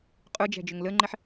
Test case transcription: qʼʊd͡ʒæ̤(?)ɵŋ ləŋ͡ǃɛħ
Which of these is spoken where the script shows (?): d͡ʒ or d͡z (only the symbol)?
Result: d͡ʒ